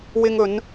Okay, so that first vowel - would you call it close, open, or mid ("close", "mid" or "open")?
close